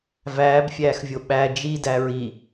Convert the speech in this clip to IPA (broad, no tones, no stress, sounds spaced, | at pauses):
v æː b fʲ æː x vʲ o ɓ æ d͡ʒ i d æ ɹ i